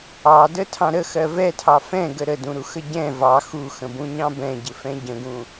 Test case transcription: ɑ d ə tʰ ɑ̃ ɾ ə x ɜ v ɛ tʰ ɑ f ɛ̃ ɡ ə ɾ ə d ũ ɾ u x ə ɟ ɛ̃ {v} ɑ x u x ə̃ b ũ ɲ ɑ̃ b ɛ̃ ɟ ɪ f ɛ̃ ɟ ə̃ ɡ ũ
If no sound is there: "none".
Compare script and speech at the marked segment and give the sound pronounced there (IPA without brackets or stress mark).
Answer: v